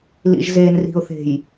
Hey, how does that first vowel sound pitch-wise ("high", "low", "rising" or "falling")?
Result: low